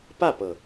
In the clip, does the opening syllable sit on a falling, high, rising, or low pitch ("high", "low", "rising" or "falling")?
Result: falling